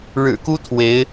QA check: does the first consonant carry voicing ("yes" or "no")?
yes